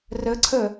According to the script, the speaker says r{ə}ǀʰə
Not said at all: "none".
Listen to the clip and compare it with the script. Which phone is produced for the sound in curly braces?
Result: ə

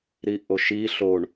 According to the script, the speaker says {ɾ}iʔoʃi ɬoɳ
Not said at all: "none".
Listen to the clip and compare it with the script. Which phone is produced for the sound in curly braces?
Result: ɾ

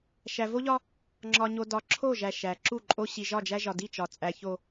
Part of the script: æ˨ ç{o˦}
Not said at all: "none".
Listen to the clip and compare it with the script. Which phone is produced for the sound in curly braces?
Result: o˨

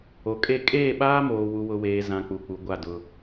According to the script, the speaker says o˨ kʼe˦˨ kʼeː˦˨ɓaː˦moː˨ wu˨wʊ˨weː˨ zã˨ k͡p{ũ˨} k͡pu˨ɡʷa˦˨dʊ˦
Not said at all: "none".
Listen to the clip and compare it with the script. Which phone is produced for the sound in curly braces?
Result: u˨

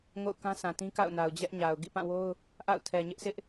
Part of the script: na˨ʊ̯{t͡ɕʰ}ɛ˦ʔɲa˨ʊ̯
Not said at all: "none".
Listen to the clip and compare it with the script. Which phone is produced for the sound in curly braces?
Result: d͡ʑ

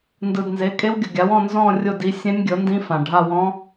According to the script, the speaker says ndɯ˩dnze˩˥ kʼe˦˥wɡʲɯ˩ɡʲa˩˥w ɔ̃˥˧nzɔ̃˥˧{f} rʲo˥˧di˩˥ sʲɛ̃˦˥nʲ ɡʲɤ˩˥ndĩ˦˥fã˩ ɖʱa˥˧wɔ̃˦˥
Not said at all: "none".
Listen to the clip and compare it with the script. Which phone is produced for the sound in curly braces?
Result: none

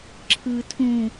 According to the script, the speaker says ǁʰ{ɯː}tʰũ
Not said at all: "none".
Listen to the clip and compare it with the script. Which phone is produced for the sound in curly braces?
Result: ɯː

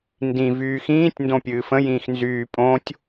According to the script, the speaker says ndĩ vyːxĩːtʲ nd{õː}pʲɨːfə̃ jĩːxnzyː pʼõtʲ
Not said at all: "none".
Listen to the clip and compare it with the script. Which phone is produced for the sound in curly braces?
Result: õ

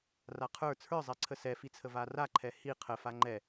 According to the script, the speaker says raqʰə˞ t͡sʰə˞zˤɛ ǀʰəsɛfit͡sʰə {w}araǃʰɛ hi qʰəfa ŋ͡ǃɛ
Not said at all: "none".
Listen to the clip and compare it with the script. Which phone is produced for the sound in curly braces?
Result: v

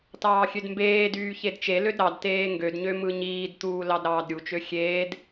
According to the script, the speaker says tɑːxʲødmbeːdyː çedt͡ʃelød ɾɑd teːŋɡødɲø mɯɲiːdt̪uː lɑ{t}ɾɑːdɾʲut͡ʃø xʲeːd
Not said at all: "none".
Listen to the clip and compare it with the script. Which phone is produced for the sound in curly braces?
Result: d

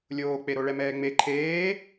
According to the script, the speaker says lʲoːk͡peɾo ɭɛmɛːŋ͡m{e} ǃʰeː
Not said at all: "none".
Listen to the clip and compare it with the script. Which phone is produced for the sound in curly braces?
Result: e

